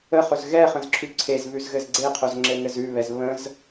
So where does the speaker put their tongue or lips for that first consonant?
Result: uvula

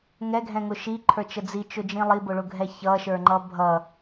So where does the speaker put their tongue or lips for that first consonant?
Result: velum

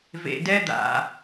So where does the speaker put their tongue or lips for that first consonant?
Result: lips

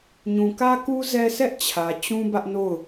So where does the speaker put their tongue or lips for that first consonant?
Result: palate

